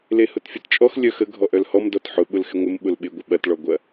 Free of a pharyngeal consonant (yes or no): no